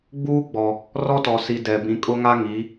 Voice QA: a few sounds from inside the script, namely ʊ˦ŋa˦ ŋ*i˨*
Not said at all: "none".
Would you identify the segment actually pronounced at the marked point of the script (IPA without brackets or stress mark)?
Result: i˨˦